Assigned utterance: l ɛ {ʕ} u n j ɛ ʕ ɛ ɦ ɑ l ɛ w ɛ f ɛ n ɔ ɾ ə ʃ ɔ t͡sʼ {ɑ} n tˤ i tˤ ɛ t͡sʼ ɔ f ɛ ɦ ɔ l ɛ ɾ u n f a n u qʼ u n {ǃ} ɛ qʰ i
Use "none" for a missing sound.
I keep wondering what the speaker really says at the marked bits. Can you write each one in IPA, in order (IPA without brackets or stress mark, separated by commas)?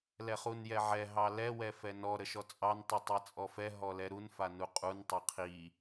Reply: χ, ɑ, tˤ